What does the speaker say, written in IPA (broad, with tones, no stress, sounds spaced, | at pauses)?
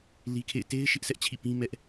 l i˦ kʰ ḛ˦˨ ɪ̯ t e˦ ɪ̯ ʃ ɪ˦ ʔ sʰ ɛ˦ ʔ t͡ɕʰ ḭ˦˨ p ĩ˦ m ɛ˦ ʔ